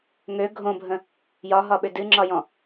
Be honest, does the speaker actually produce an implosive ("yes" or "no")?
yes